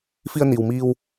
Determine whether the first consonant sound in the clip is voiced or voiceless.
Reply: voiceless